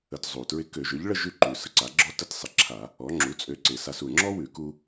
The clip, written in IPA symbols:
ə˧ t zˤ u˨˩ t ɹ ɪ˧ k ø˧˩˧ ʒ ø˩˥ ʎ ɭ ə˥˧ ʒ ʉ˥ ǃ ʉ˨˩ s ə˩˥ ǀ a˩˥ ɡ͡ǁ ɔ˥ t ə˥˧ t sˤ ɪ˨˩ ǁʰ a˧˩˧ | ɔ˩˥ ŋ͡ǁ u˩˥ t͡sʼ ø˧ ǀ ɪ˧˩˧ s a˧ s u˨˩ ŋ͡ǁ ɔ˥ w ʉ˧˩˧ k u˧

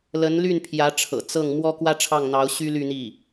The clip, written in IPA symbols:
l ə˧˥ n l y˥˩ n pʰ j ä˧˥ ʈ͡ʂʰ ɤ̰˨˩ t͡s ɤ˥˩ ŋ m w ɔ˥ k w ä˥ ʈ͡ʂʰ ɑ˥˩ ŋ n̪ ɑ˧˥ ʊ̯ ɕ y˥ l y˥˧ n̪ i˥˩

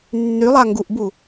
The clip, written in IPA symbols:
nː y lˠ a ŋ ɡ u ʔ b u

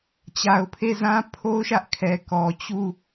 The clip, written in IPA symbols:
t͡ɕ a˨ ʊ̯ pʰ e˦˨ z ã˦ pʰ o˦ ʊ̯ ʃ ä˦ ʔ kʰ ɛ˨ k ɔ˨ t͡ɕ u˦˨

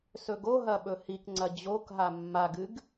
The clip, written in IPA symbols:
s ɵ ɡ o ɦ ɐ ɓ ɵ h i k ŋ͡ǀ ɐ d͡ʑ o k ɦ a mː a ɡ ɨ ɡ

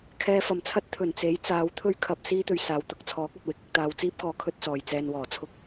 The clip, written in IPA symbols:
kʰ ɛː˧ f ɐ˨˩ m t͡sʰ ɐ˥ t̚ t̪ʰ ɵ˨˩ n t͡s e˨˥ j t͡s aː˨˧ w t̪ʰ ɵ˥ ɥ kʰ ɐ˧ p̚ s iː˥ t̪ ɵ˧ ɥ s aː˨ w t̪ ʊ˨˥ k̚ t͡sʰ ɔː˨˥ k̚ ɵ˨ t̚ w ɪ˨ k̚ ɪ˧ k̚ t̪ aː˧ w t͡s iː˥ p̚ k ɔː˧ kʰ ɵ˥ t̚ t͡s ɔː˨ j t͡s ɛː˧ n w ɔː˨˩ t͡sʰ ʊ˥ k̚

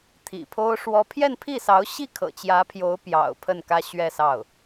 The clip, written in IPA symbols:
t̪ʰ ḭ˨˩ pʰ o˥ ʊ̯ ʂ w ɔ˥ pʰ j ɛ˥˧ n pʰ i˥˩ s ɑ˧˥ ʊ̯ ɕ i˥˩ kʰ ɤ̰˨˩ t͡ɕ j ä˧˥ pʰ j o˧˥ ʊ̯ p j ɑ̰˨˩ ʊ̯ pʰ ə˥˩ n k ä˥ ɕ ɥ ɛ˥˧ s ɑ˥˩ ʊ̯

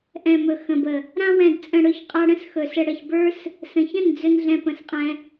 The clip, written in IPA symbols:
ʔ ɛ̃˨ m ɵ˨ x ə̃˨ b ə˨ | ɾ ã˧ w ɛ̃˨ d t͡sʼ ə̃˨ ɽ ɵ˦˨ ç qʼ a˧ ɽ ə̃˦ s x ɵ˨ s ə˧ ɽ ə˨ ç b ə˞˦ s | s ə̃˨ ç ə̃˦˨ n d͡z ɵ˦ n ɮ ɛ̃˧ p ə̃˨ s qʼ ɛ̃˧

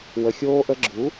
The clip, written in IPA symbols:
w ə˨ xʲ oː˧ ʔ ə˧ ɡ͡ǁ u˨˦

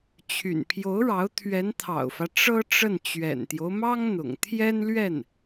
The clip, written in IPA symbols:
t͡ɕʰ y̰˨˩ n pʰ j o˧˥ ʊ̯ ɻ ɑ˧˥ ʊ̯ t̪ʰ ɥ ɛ˧˥ n t̪ʰ ɑ̰˨˩ ʊ̯ f ä˦ ʈ͡ʂ ɤ˥ ʈ͡ʂ ə˥˩ n t͡ɕ ɥ ɛ̰˨˩ n t̪ j o˦ ʊ̯ m ɑ˥ ŋ n̪ ʊ̰˨˩ ŋ t̪ʰ j ɛ˥ n l ɥ ɛ˥˩ n

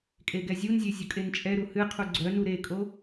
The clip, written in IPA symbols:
kʼ e ɡ ɛ zʲ u n zʲ e zʲ ʊ kʼ e n t͡ʃʼ ɛ ɾ u h ɨ qʰ u ɡ͡ǀ œ n u ɾ e kʼ o

